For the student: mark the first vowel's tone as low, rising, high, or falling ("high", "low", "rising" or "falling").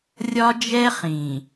high